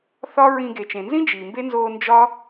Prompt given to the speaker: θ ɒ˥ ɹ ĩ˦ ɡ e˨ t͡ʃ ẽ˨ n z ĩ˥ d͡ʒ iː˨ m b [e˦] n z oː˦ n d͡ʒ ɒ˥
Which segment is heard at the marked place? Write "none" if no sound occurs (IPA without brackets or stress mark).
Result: e˥